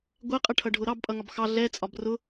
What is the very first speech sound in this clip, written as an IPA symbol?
ɡʷ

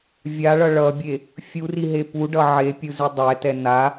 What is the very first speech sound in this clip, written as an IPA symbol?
vʲ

